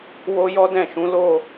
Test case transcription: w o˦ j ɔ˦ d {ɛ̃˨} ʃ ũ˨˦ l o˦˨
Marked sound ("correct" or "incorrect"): incorrect